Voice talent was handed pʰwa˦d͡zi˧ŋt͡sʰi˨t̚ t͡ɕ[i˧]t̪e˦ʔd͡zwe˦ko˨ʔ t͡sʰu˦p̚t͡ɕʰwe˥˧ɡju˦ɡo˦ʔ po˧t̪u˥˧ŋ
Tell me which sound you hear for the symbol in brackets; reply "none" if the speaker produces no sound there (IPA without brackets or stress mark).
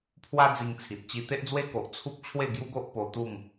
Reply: i˧